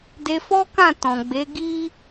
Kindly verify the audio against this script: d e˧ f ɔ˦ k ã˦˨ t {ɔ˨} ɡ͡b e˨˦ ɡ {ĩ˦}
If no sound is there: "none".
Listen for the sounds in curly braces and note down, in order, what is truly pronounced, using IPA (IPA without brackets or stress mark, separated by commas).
ɔ̃˨, i˦